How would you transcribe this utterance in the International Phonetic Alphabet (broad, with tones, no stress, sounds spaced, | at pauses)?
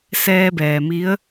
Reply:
s ɛː˧ b ɛː˩ m i˧˥ ə̯